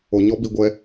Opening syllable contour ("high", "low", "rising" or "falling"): low